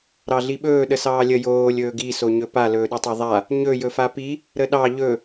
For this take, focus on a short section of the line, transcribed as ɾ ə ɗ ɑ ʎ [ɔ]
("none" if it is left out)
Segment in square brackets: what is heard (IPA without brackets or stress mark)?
ɵ